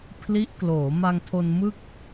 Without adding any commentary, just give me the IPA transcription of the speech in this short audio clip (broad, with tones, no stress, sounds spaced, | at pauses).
pʰ l i˦˥ ʔ k l oː˩˦ m a˧ ŋ tʰ o˧ n m ɯ˥˩ k̚